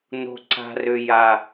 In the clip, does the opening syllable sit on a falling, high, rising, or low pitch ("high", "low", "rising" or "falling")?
high